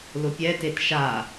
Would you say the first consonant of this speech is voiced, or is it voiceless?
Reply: voiced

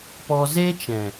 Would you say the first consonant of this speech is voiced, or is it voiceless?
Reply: voiceless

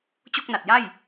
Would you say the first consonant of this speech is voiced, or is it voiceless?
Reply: voiceless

